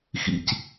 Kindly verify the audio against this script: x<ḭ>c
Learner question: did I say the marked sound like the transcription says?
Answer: yes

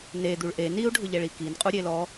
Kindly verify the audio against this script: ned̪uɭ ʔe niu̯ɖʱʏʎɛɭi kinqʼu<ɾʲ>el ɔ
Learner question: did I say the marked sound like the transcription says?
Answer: yes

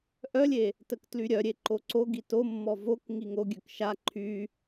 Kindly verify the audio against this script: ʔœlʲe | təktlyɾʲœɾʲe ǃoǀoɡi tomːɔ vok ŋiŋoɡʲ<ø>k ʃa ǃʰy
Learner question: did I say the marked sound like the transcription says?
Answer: yes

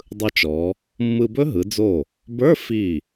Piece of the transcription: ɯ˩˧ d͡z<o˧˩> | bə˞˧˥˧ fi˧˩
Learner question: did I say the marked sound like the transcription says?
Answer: yes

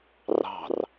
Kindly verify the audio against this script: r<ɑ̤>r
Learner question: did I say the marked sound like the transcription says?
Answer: yes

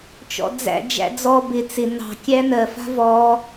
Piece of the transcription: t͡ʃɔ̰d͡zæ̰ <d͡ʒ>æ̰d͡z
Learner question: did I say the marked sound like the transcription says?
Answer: yes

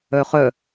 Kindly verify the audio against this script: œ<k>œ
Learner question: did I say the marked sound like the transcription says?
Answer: no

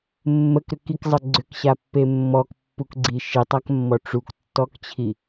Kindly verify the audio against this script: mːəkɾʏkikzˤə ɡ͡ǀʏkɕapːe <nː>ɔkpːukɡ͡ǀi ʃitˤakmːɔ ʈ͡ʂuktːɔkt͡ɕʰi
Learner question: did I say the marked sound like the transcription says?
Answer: no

